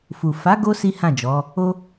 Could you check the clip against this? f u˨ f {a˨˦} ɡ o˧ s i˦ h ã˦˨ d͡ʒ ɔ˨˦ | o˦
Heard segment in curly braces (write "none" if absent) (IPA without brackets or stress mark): a˨˦